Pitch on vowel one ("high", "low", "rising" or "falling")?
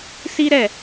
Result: high